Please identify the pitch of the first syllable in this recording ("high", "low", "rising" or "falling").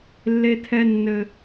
high